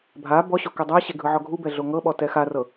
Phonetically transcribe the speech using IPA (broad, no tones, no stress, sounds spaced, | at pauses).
bʱ a b ɔ ɕ o k ɛ dˤ a ɕ e ɡʱ ɯ ʕ ɔ ɡʱ u b ɛ ɮ o ŋ ɤ ɓ ɔ t ɛ x a r ɤ